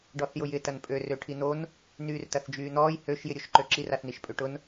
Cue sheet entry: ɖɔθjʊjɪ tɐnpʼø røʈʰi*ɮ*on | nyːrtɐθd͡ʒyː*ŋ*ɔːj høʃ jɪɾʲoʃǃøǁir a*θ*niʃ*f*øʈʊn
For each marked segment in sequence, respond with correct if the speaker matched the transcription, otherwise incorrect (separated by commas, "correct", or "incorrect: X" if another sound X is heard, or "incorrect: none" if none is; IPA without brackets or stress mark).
incorrect: n̪, incorrect: n̪, correct, incorrect: pʼ